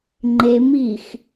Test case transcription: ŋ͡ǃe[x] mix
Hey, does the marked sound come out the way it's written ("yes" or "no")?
no